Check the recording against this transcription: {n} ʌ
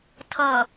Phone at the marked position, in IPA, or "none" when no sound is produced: tʰ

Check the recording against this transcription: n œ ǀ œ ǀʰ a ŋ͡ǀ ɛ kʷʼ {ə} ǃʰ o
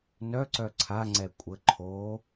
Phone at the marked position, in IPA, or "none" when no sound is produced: ə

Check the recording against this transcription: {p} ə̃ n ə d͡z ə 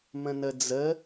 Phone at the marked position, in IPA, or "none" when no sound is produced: m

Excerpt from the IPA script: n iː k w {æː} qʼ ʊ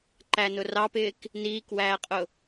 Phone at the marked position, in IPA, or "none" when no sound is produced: æː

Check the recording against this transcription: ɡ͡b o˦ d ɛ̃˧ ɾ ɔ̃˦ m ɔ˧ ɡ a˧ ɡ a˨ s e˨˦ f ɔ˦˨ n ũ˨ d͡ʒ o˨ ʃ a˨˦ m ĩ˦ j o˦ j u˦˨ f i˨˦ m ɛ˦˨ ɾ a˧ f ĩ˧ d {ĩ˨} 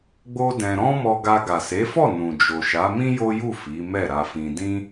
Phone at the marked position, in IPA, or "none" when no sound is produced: ĩ˦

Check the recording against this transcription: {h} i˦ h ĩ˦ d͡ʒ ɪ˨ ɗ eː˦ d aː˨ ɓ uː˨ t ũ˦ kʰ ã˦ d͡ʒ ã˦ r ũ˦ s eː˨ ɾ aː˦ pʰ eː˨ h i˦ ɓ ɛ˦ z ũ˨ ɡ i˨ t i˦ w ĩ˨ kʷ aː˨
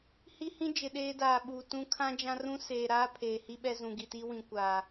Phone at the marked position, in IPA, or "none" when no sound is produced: h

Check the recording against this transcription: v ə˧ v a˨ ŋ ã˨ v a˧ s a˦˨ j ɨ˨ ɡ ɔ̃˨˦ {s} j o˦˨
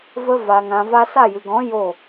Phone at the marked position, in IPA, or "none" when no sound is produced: none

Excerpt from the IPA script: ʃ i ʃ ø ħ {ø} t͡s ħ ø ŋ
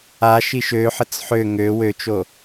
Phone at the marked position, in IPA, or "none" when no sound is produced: ə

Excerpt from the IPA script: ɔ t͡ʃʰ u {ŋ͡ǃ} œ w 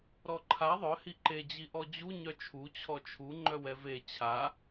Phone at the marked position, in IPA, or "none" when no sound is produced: ŋ͡ǃ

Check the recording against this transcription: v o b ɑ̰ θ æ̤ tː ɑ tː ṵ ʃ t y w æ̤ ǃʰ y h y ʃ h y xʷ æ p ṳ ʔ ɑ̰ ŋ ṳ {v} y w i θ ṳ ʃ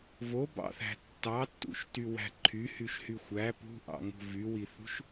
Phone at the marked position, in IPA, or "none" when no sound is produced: v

